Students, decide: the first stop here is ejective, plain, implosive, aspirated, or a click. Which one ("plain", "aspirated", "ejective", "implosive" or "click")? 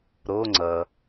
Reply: click